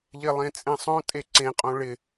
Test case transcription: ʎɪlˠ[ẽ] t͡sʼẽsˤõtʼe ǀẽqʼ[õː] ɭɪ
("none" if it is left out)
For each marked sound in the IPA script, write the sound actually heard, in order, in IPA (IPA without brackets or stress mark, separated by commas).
ẽ, õ